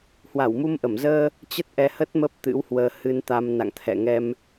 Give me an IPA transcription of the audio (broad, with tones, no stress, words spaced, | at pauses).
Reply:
hwa˧˩wmu˧mʔə˧˩m zəː˧ | t͡ɕə˦˥t̚ʔɛ˧hə˦˥t̚ mə˦˥p̚t̪ɨ̰˧˥whwəː˧ hɨ˧nt̪a˧m na̰˧˨ŋt̪ʰɛ̰˧˨ŋɛ˧m